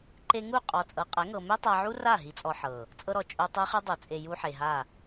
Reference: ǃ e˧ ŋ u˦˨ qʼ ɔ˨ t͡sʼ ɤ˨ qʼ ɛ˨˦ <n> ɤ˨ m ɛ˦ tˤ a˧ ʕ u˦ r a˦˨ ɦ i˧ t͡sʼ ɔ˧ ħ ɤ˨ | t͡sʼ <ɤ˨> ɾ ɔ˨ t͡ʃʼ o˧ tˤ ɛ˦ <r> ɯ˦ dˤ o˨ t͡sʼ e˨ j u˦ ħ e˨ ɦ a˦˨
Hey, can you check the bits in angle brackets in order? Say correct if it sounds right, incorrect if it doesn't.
incorrect, incorrect, incorrect

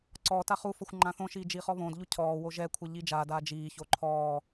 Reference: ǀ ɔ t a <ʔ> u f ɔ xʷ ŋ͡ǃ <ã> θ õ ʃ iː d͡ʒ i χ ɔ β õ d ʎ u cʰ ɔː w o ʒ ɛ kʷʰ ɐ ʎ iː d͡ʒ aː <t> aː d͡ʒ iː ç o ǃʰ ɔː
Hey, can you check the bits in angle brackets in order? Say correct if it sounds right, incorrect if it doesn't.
incorrect, correct, incorrect

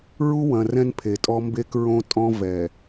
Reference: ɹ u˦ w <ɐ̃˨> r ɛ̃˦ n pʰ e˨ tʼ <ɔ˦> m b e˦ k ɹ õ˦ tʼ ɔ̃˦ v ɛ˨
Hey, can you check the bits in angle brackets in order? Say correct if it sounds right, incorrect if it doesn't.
correct, correct

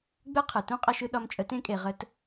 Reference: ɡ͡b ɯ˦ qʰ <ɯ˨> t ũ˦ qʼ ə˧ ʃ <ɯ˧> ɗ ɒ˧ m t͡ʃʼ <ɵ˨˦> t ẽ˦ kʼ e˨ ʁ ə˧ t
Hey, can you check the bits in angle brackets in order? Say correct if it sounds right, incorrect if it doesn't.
correct, correct, incorrect

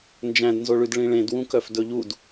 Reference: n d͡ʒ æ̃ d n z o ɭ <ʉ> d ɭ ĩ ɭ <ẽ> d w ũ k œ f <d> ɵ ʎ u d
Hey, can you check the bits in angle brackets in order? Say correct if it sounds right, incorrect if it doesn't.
correct, correct, correct

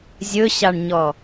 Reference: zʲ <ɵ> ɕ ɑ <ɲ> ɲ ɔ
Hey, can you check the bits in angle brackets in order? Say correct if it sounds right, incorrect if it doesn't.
correct, incorrect

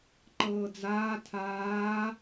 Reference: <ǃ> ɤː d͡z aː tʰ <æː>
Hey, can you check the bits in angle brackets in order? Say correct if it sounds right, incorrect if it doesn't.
correct, incorrect

